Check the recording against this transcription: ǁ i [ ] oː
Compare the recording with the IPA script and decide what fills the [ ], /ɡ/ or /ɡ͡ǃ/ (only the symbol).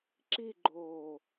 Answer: ɡ͡ǃ